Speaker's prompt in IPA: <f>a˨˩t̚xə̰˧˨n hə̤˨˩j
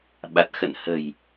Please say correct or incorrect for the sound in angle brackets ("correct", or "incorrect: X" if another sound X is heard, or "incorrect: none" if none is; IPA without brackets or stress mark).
incorrect: ɓ